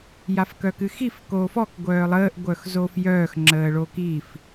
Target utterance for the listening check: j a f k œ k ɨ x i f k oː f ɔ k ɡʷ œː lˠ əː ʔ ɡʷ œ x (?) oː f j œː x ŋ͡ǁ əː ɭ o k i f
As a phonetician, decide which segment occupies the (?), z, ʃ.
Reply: z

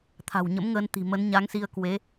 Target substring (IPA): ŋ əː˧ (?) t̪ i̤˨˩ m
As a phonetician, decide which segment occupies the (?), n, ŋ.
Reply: n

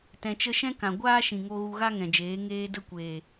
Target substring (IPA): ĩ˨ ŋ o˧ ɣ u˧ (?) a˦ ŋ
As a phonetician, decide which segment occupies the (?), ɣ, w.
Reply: ɣ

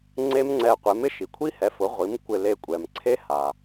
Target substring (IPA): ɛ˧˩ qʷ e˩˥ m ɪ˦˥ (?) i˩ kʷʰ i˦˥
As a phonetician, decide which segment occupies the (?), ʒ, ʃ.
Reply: ʃ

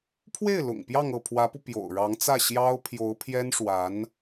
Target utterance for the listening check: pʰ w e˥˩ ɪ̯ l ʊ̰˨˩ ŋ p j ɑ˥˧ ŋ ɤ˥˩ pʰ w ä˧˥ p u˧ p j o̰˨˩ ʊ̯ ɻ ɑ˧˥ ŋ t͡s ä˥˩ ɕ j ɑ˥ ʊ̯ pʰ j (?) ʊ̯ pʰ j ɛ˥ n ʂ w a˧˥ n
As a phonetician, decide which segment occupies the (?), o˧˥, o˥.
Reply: o˧˥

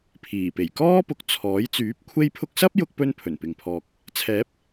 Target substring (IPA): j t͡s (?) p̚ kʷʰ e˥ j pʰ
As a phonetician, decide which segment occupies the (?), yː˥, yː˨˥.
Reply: yː˨˥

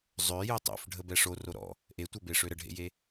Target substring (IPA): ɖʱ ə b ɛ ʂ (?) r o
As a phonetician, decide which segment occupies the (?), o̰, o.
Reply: o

